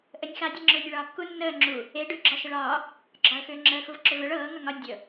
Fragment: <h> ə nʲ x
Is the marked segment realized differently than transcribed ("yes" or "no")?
yes